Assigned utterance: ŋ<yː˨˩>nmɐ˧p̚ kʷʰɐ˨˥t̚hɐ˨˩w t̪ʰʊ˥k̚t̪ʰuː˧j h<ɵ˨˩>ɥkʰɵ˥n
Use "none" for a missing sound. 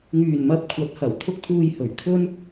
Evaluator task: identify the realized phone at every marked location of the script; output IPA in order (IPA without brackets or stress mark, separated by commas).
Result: yː˨˩, ɵ˨˩